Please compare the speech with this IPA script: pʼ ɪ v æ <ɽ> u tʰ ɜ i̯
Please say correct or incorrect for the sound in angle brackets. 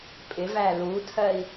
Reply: incorrect